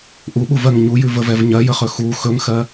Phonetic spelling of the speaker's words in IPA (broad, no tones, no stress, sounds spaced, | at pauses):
ʔ u ɓ u v ɜ ŋ ɲ u j ʉ v ə v ɛ v ɲ ɜ j ə χ ɵ x u x ɵ ŋ x ɜ